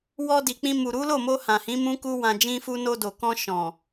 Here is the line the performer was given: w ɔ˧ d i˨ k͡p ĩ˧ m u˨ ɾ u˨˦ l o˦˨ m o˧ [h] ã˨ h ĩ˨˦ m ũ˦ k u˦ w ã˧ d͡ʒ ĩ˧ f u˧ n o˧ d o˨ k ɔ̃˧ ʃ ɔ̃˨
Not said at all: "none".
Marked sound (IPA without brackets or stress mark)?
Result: h